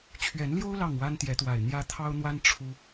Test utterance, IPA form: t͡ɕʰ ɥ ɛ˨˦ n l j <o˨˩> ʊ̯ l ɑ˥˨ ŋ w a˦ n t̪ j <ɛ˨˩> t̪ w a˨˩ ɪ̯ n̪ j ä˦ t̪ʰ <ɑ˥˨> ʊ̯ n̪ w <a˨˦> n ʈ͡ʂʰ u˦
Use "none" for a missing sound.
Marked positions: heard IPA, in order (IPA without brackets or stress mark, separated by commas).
o˦, ɛ˨˦, ɑ˦, a˦